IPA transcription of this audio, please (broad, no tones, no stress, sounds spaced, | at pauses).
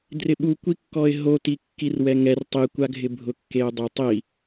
d r ɪ ɓ u kʷ i kː ɔ ɪ̯ ɦ o t i kː i r w ɛ ŋ ɛ r tˤ i kʷ a ɡʱ ɪ bʱ ʊ kː e ʊ̯ dˤ ʊ tˤ i